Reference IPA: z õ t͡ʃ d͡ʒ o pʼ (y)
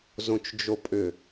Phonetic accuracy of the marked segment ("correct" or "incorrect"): incorrect